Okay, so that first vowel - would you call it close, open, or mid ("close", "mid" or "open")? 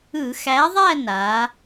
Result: close